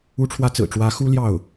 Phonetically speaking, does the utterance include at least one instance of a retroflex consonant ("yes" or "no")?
yes